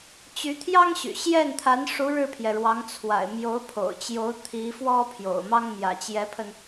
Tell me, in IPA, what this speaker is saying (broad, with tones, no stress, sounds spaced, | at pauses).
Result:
t͡ɕ y˧˥ t̪ʰ j ɑ˥ ŋ ɕ y̰˨˩ ɕ j ɛ˥˩ n t̪ʰ a˧˥ n ʂ u˧˥ ɻ ɻ̩˥˩ pʰ j ɛ˩ ɻ w ɑ˧˥ ŋ t͡sʰ w a̰˨˩ ɪ̯ m j o˧˥ ʊ̯ pʰ o̰˨˩ ʊ̯ t͡ɕ j o˧˥ ʊ̯ t̪ʰ i˧˥ f w ɔ˥ pʰ j o̰˨˩ ʊ̯ m ɑ˥ ŋ m j ä̰˨˩ t͡ɕ j ɛ˧˥ pʰ ə˧ n